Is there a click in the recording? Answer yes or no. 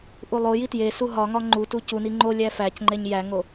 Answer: yes